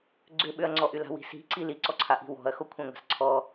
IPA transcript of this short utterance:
ɡ͡ǀʏɓʏɐ̯ŋ͡ǀɔʔy la̤wi̤si̤ǀi liǀɔǀʰaʔi̤ wɔ̤ɐ̯ xokʷʰãŋʷa̤sǀʰɔ

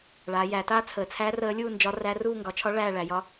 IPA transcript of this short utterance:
ɭaː˩˧jæː˩˧taː˥˧ t͡sʰəː˩˧t͡sʰæː˧˥ rəː˧˥lʲuː˥˧nd͡ʒɒ˧˥ ræ˧˥ruː˥˧ ŋɡɒ˩˧t͡ʃʰɒ˧˥ ɭæː˥˧ ɭæ˩˧jɒ˧˥

